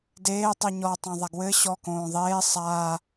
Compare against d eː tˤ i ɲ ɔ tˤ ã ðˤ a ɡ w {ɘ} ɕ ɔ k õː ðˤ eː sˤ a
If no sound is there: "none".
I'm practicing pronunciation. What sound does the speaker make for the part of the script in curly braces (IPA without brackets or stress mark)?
ɘ